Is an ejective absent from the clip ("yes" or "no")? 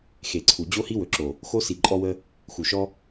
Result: no